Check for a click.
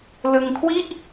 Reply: absent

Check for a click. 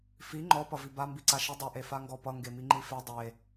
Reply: present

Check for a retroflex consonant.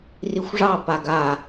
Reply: present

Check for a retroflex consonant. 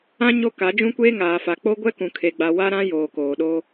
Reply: absent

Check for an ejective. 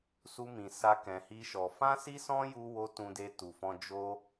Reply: absent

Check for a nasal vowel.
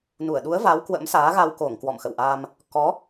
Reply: absent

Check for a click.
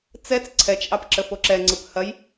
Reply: present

